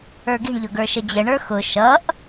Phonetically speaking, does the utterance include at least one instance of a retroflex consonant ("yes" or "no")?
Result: yes